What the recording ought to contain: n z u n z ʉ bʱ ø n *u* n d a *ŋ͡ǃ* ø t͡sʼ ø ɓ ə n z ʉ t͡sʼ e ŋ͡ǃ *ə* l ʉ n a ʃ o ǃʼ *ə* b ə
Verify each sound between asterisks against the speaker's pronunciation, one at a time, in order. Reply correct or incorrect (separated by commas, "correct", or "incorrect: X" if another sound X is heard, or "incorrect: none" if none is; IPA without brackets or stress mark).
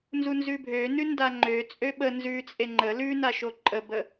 incorrect: ʉ, correct, correct, correct